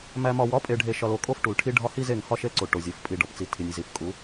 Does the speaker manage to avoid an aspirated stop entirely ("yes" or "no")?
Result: no